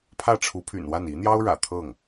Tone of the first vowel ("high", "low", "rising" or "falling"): falling